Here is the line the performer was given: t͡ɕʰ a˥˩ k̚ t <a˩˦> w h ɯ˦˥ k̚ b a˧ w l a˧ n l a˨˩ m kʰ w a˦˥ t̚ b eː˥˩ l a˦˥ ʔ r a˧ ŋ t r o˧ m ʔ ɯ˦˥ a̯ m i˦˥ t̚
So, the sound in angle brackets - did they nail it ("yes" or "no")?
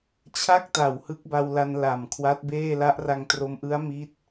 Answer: no